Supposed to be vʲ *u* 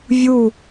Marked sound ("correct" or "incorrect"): correct